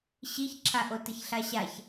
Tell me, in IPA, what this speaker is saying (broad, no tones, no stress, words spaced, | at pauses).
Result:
ɕiçǁʰa ʔotəçɬaɕaç